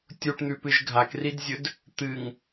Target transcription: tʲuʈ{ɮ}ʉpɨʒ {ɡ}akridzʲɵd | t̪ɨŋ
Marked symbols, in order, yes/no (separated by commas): no, no